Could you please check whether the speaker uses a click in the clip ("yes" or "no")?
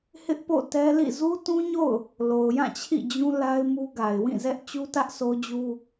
no